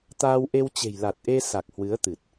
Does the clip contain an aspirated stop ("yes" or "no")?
no